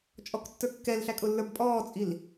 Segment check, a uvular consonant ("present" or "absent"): absent